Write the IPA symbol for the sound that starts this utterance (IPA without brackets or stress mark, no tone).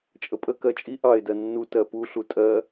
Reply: t͡ʃʼ